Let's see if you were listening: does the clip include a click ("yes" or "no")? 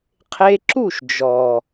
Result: yes